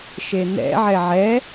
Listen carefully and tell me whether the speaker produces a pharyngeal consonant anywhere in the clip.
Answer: yes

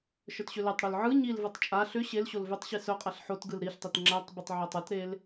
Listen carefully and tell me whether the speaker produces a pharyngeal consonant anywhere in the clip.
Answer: yes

